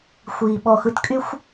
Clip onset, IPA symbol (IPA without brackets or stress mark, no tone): xʷ